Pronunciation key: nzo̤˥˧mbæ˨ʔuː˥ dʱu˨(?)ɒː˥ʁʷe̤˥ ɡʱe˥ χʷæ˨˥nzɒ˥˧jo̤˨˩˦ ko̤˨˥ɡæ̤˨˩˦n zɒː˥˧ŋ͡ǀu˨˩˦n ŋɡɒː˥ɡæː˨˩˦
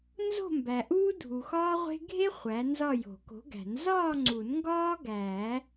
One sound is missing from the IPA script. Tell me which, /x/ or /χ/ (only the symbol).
x